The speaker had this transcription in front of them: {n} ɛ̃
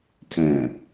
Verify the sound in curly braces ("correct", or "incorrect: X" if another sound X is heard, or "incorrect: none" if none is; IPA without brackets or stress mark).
incorrect: tʰ